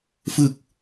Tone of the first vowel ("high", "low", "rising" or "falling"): falling